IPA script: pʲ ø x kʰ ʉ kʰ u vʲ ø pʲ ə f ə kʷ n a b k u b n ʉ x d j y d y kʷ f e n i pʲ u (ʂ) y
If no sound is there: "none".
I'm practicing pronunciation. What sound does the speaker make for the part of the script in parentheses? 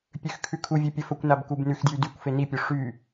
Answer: ʂ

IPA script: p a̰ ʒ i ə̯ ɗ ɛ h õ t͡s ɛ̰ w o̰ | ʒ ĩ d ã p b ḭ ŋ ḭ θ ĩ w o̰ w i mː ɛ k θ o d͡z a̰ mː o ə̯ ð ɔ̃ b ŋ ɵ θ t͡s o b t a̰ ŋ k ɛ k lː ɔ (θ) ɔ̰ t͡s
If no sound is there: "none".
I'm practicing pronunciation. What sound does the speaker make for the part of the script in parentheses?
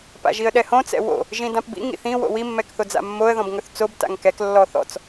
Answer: θ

